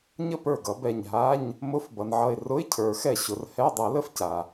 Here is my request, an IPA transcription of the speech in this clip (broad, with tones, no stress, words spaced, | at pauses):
ɲə˥˩ pə˞˥˩ɡʌ˨˩˦bɛ˧˩ɲ ɦa˧˥˧ɲ | mʊ˧˥˧f bʌ˩nʕʌ˧˩ɪ̯ rʊ˧˥˧ɪ̯ cʰə˞˨˩˦xɛ˥˩ɕʊ˨˩˦r hɛ˧˥˧ dˤɛ˨˩˦lə˥˧f ca˩